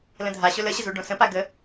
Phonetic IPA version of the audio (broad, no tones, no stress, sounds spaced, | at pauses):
l ə̃ dʱ a ɕ ɵ l ə ɕ ə z u ɖ õ s ə̃ p a ɡ ə